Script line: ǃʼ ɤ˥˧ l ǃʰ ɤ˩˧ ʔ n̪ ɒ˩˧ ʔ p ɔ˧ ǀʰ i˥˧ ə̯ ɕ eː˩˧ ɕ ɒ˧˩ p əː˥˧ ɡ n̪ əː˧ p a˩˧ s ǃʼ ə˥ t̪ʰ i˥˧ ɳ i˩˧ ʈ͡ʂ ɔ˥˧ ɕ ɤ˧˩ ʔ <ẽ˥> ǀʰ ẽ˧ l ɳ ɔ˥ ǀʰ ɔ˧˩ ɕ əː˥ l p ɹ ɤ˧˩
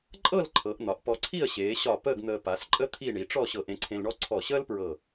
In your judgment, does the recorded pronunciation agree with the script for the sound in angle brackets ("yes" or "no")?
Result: no